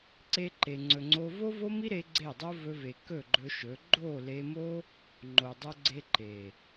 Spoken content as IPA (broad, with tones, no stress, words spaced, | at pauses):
ǀe˧ǃe˨ŋ͡ǀɵ˨ŋ͡ǀo˧ vo˦vo˦mi˦ɾe˧ ɡ͡ǀe˦˨dˤo˦ vɵ˧ve˨ kɵ˦˨ɡ͡ǃɵ˧ʃɵ˨˦ ɡ͡ǃo˦˨le˧mo˦ | ŋ͡ǃo˨dˤo˧ɡ͡ǀe˧ ǃe˨